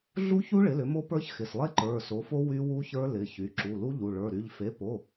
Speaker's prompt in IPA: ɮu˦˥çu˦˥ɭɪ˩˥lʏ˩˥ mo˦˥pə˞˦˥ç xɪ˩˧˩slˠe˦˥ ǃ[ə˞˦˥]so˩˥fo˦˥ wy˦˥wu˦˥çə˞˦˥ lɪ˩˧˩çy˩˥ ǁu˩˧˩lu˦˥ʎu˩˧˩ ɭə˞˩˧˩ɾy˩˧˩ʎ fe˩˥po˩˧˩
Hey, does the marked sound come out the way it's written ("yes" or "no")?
no